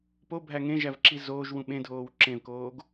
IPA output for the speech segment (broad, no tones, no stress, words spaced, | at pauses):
pobʱæ ŋẽʒævǁi zoːʒwũ ɓẽdʱoːw ǁẽvkoːɡ